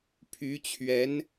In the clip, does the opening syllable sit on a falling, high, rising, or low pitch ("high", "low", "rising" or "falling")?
rising